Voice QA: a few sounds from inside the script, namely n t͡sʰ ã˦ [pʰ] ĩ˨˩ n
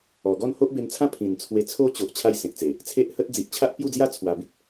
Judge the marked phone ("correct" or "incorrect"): correct